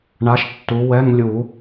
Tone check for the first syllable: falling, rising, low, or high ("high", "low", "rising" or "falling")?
rising